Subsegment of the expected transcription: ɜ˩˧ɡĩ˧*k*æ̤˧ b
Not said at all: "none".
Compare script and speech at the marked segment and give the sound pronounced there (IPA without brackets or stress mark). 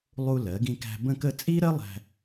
k